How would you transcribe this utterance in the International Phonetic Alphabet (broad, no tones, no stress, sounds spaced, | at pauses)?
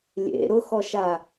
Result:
lʲ ḛ ɾ ʊ x ɔ ʃ a